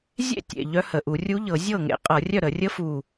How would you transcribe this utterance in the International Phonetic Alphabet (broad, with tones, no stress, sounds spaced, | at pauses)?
zʲ ḛ˥˩ tʲ ḛ˨˩ ʎ œ˧˥ h ə˨˩ ʔ u˧˩˧ rʲ u˧˥ ʎ ɤ˧˩˧ zʲ ɤ˥˩ ŋ ḛ˧˩˧ qʼ ɤ˧˩˧ rʲ œ˥˩ ɾ ə˧˩˧ rʲ ə˧˥ f u˨˩